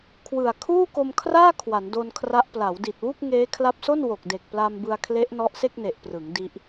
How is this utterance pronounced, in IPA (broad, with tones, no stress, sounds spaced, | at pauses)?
kʰ w ɯ˨˩ a̯ kʰ uː˥˩ k o˧ m kʰ r aː˥˩ kʰ w a˩˦ n d o˧ n kʰ r a˦˥ ʔ p l a˩˦ w d i˨˩ t̚ w u˥˩ k̚ ŋ eː˦˥ kʰ l a˦˥ p̚ s o˥˩ n w o˨˩ k̚ d e˨˩ k̚ p l a˧ m b ɯ˧ a̯ kʰ l e˦˥ ʔ n ɔ˦˥ ʔ s e˥˩ k̚ n e˨˩ ʔ p r ɯ˩˦ ŋ d i˦˥ ʔ